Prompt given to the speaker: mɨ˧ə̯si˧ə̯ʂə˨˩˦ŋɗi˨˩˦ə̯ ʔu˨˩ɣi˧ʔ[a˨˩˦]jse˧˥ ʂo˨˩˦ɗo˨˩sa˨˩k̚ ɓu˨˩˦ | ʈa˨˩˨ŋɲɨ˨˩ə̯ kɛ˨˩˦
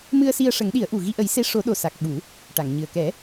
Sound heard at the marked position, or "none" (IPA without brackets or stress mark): ə˨˩˦